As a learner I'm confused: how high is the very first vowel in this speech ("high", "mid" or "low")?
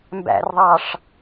low